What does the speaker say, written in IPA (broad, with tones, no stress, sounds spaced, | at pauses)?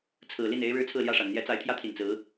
t͡sʰ ɹ̩˨˩ l i˥˩ n e˧˥ ɪ̯ ɻ ɻ̩˥ t͡sʰ ɹ̩˥˧ l j ä˥˩ ʂ a˨˩ n n̪ j ɛ˧˥ t͡s a˧˥ ɪ̯ t̪ʰ j ä˥ t̪ʰ i˨˩ n t͡s ɹ̩˧˥